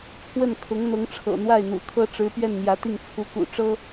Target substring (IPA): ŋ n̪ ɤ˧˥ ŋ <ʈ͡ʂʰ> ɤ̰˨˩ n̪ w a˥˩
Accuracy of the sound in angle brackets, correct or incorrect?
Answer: correct